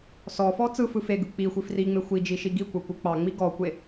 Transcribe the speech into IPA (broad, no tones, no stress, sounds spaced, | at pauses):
s ɔ f ɔ t͡s ɯ f ɯ f e ɡ ɯ k͡p i xʷ i f r i ŋ͡m e xʷ i d͡ʒ i ʃ i ɡ i kʷ ɐ kʷ ɯ k͡p ɑ ŋ͡m i ɡ ɔ kʷ e